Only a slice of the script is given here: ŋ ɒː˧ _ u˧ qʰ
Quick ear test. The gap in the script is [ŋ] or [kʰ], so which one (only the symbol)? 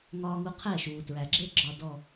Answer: ŋ